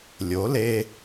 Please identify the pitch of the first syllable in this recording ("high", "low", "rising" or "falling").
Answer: rising